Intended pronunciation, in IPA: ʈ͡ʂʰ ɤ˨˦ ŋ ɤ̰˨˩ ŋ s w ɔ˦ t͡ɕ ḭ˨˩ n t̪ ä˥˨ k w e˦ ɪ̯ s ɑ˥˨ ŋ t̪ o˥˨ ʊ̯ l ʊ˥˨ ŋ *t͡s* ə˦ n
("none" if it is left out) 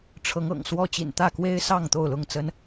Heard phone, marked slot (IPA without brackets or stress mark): t͡s